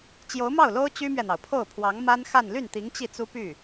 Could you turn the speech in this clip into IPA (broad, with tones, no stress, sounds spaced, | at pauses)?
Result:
t͡ɕ j o˧˥ ʊ̯ m ɑ˥˩ ʊ̯ l o˥ ʊ̯ t͡ɕ y˥ m ɥ ɛ˨ n̪ ɑ˩ ʊ̯ pʰ o˥˩ ʊ̯ pʰ w ɑ˧˥ ŋ m a˥ n x a˥˧ n l y˥˩ n t̪ i˧˥ ŋ t͡ɕ i˥˩ t͡s u˥ p y˥˩